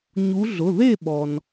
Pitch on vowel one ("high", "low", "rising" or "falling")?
rising